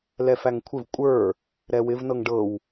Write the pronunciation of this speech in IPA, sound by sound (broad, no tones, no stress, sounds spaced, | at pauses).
l ɛ f æ ŋ kʷʰ ɪ v kʷʼ ə˞ | ɾ ɛ w ɪ v n ɤ ŋ ɖ ɤ w